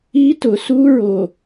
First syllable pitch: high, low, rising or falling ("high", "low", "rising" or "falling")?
high